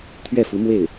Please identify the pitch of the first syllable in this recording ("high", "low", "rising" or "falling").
falling